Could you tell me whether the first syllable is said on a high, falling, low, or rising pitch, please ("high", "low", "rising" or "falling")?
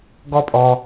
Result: high